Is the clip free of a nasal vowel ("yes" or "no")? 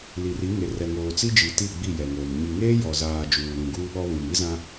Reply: no